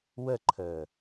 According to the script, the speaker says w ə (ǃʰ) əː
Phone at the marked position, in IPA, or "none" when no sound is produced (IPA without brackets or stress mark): ǃʰ